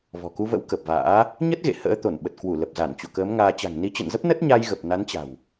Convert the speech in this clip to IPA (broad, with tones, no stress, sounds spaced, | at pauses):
v ɔ̤˨˩ k u˧ v ə̰˧˥ w k ə˨˩ p̚ v a̰ː˧˥ | ɲ ə˦˥ t̚ ɣ ḛ˧˨ h ə̰ː˧˥ t̪ o˧˩ n ɓ ə˨˩ t̚ k w u˧˩ l ə˨˩ p̚ z a˧˩ n t͡ɕ o̰˧˨ k əː˨˦ m ŋ aː˧ t͡ɕ a̤˨˩ ŋ n i˨˦ t͡ɕ ə̰˧˨ n z ə˦˥ p̚ n ə˦˥ t̚ ɲ a˧ j ɣ ə˨˩ p̚ n a˨˦ n t͡ɕ a̤˨˩ w